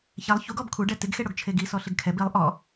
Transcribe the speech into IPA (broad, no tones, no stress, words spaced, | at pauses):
çɛlˠ çuɡɔb kʰuɖɛ tɪɡxeɽoɡ t͡ʃʰeɡi sɔɬɪɡkʰɛb ilˠ ʔɔ